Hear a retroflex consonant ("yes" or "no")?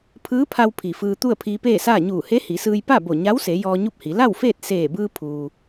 no